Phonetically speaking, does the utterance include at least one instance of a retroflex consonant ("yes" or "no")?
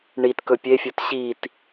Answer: yes